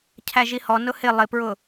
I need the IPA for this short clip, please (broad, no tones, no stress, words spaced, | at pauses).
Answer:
cʰæʒihɔ nʊhɪ lˠɪpɹʊ